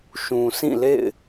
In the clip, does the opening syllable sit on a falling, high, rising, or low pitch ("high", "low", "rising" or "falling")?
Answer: low